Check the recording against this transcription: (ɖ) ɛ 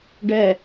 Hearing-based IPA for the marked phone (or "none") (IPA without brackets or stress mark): ɖ